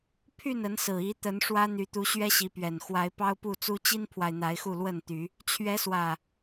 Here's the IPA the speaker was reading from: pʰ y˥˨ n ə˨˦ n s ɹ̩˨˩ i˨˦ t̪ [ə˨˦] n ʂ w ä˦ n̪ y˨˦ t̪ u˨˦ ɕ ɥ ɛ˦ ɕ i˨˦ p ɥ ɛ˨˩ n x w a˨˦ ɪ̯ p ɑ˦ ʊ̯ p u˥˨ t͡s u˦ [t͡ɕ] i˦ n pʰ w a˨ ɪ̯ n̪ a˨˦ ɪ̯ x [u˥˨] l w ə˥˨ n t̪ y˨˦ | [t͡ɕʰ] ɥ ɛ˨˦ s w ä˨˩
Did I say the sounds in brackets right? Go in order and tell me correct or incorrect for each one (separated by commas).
correct, correct, correct, correct